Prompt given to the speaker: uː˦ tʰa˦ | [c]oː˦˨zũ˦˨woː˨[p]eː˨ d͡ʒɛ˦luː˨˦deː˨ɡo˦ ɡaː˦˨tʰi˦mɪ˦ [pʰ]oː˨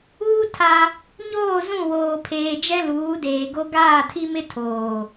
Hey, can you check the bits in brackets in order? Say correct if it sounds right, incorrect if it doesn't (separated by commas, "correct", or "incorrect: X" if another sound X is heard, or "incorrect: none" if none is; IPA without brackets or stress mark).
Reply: incorrect: ɲ, incorrect: pʰ, incorrect: tʰ